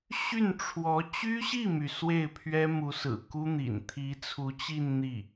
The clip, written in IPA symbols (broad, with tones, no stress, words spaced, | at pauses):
ɕy˥˩nʈ͡ʂʰwɔ˧˥ t͡ɕy˥ɕi˥˩my˩ swe˥˩ɪ̯pʰɥɛ˥mu˧˥sɹ̩˨˩ ku˥n̪ḭ˨˩n t̪ʰi˧˥t͡sʰu˧˥t͡ɕi˥˧n n̪i˥˩